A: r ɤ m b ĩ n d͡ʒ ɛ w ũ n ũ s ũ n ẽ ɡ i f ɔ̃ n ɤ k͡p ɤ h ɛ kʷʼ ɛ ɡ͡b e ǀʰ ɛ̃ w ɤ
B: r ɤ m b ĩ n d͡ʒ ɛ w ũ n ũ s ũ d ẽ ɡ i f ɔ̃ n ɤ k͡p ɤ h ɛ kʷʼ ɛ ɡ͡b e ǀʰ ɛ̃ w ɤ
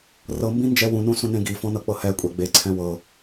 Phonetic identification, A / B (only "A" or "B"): A